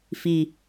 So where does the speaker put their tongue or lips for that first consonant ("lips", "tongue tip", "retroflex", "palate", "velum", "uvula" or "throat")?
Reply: lips